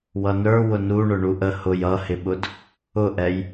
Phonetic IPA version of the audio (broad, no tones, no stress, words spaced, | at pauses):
wʌnə˞ wʊnuɳʊ ɳuʔə hʊj ʌhɪɓʊd | ʊʔɛj